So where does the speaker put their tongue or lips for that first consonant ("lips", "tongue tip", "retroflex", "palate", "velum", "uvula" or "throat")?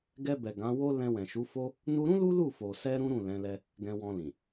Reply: velum